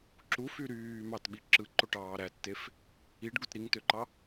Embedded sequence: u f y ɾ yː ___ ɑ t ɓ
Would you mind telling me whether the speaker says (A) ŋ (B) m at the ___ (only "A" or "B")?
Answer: B